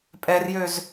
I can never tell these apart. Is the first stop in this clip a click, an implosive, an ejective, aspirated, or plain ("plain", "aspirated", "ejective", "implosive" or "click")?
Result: ejective